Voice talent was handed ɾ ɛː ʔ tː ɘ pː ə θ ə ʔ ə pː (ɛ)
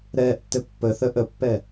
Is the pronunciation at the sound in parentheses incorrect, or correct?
correct